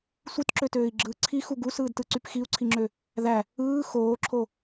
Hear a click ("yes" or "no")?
yes